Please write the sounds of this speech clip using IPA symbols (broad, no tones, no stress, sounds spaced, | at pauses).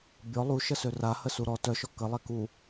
bʲ ɔ lˠ u ʃ ə s ø r a h ə s u ɾ ɔ t œ ʃ ɔ k ə lˠ ɛ k u